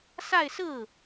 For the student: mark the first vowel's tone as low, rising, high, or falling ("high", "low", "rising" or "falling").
falling